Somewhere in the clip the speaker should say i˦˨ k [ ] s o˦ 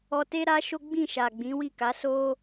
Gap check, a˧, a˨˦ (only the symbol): a˨˦